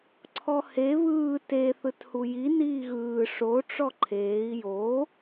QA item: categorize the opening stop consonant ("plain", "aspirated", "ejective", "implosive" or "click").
click